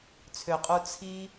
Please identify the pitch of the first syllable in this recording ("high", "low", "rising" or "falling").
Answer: low